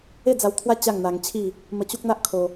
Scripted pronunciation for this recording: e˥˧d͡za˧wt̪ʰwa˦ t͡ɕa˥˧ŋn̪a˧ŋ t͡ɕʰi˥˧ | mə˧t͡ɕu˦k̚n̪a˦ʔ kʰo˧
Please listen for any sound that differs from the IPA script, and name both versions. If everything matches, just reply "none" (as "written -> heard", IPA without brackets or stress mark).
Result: none